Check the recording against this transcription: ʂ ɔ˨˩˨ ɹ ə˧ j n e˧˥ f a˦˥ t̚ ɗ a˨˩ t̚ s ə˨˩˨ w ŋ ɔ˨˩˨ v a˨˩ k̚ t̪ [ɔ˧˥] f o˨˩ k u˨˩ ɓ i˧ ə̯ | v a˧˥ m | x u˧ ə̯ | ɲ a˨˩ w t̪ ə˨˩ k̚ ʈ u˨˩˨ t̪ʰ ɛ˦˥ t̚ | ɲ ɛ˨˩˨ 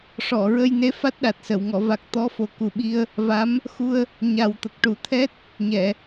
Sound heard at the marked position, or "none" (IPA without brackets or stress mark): ɔ˧˥